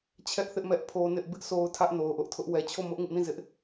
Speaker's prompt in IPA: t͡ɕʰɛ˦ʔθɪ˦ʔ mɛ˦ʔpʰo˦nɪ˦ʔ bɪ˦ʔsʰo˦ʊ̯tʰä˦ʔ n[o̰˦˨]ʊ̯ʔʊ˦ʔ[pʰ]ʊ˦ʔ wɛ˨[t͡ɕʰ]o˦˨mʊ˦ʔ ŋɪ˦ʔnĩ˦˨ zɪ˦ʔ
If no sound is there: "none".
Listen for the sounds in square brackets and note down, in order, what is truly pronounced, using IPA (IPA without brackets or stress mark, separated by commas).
o˨, tʰ, t͡ɕʰ